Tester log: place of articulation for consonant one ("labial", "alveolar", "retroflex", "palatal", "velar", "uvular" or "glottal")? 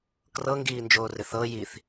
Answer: velar